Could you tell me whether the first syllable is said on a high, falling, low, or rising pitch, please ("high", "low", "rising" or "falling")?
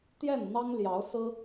falling